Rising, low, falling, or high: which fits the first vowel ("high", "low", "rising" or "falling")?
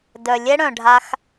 low